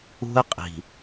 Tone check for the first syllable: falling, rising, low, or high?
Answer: high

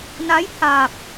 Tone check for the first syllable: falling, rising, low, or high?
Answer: rising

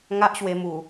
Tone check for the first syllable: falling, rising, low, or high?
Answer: high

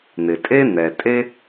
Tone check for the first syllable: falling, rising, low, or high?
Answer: low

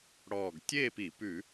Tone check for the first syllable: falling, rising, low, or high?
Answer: low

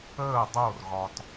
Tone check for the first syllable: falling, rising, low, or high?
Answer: falling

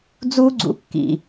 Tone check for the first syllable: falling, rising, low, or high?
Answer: high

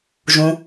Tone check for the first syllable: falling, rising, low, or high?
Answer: low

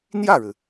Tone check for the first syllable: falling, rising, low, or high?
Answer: falling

